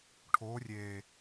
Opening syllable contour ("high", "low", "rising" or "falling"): rising